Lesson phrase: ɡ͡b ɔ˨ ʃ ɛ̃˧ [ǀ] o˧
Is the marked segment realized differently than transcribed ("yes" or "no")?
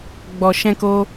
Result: yes